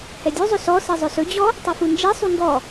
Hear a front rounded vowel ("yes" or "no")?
yes